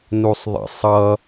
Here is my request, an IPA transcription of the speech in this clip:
n u sˤ ðˤ ḛ sˤ ʌ

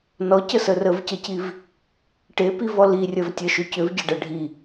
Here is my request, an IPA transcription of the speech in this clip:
n ɔ c ə s ə r ə v c ə c i v | ʈ e p i v ɔ l i rʲ ɐ v tʲ ɐ ʃ ʏ c ʏ v ɟ ɐ ɖ ɐ ɖʱ i

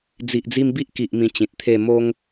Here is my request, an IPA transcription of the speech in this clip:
d͡z i˨ ʔ d͡z i˧ m b i˦ ʔ k i˨ ʔ m ĩ˨˩ t͡ɕ ĩ˨ t̚ t̪ʰ e˥˧ m o˦ ŋ

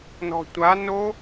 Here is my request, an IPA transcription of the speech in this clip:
n ɔ̤ tʷ a n o

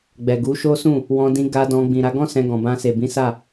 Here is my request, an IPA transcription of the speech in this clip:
ɡ͡b ɛ˨ ɡ u˨˦ ʃ o˦ s ũ˦˨ | w ɔ̃˧ d ĩ˧ ɡ a˧ d ɔ̃˧ ɡ͡b ĩ˨ ɾ a˧ ɡ ɔ̃˦ s ɛ̃˧ ɡ ɔ̃˨ b ã˧ s e˨ b ĩ˨˦ s a˦˨

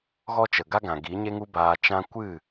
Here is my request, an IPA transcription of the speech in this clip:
ɣ ɔ˦ t͡ʃ ə˨ ɡ a˦ ɡ ã˨ ɡ i˨˦ ɲ e˦ ŋ u˦ b aː˧ t͡ʃ ã˦ kʷ ɨ˦˨

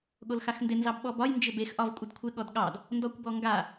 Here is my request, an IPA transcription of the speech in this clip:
ɠ o l x a x n d ɪ n z ɑ b ɓ ɔ b ɒ j n d͡ʒ ɪ b e x ʔ ɒ v kʷʼ ə d kʷʰ ɪ ɠ ɔ d ɠ ɑ d | n d ɔ kʷ b ɔ ŋ ɡ a

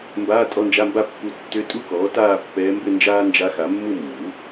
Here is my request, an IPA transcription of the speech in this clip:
m b aː˧˥˧ tʼ ɔ˧˥˧ n d͡ʒ a˧˥˧ m b a˥˧ pː u˧˥ tː ʏ˧˥ tʼ u˥˧ k ɔː˩˥ t aː˥˧ pː ɛː˧˥ m b ɘ˥˧ n d͡ʒ aː˥ n d͡ʒ a˧˥ x a˩˥ mː u˥˧ mː u˩˥

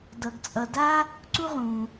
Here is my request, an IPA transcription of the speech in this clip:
d ʌ˨ ɡ t͡sʼ ʌ˨ d a˥ | ǀ u˦ ʁ ũ˩

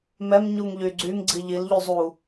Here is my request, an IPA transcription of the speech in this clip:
m ɛ m ɲ u ŋ ʎ y ɡ͡ǀ y ŋ ɡ͡ǀ i ʎ i l ʎ y zˤ u

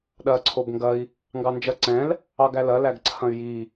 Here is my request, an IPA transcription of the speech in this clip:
ɗ ɐː ǀʰ o b ŋ ɡ ɐ i̯ | ŋ ɡ ɑ n d͡ʒ ɐ ǀ ɛ̃ l | ɑ ɡ æ l ɐ l æ ɡ ǀʰ ɐ̃ y̯ j i

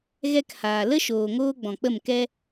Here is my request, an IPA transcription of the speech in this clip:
ɣ ɛ˦ k h aː˨ l ə˦ ʃ oː˨ ŋ oː˧ ɡ͡b ɔ̃˨ k͡p ə˦˨ m k ɛ˦

